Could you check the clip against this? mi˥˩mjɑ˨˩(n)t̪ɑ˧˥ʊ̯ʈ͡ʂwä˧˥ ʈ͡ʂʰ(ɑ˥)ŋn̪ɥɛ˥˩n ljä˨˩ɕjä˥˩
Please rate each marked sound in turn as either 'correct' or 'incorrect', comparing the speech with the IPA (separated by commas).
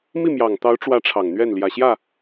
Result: incorrect, incorrect